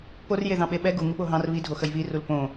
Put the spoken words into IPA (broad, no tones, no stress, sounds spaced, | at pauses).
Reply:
p o r j e ð ɑ̃ ɓ e ɓ ɛ ɡ u ŋ u ɓ o ɦ ɑ̃ r β i dʱ o x ə j β i r u l p õ